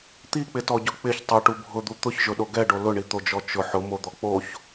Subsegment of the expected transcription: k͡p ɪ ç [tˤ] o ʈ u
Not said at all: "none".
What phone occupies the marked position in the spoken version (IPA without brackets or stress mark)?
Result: tˤ